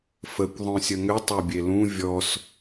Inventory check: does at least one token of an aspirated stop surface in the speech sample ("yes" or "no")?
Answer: no